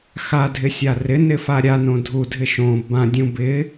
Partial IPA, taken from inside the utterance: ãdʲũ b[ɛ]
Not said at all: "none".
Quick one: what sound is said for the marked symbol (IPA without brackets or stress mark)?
ɪ